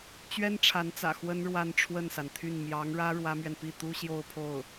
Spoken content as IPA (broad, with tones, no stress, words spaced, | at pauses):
t͡ɕɥɛ˥nʈ͡ʂʰa˧˥nt͡sä̰˨˩ xwə˥nɻwa˥˧n ʈ͡ʂʰwə˥˩nsa˩nt̪ʰy˥˩n mjɑ˧˥ŋɻä˥ ɻwä˥mɥɛ˨n pi˥˩t̪u˥ɕjo˥˧ʊ̯pʰo˥˩ʊ̯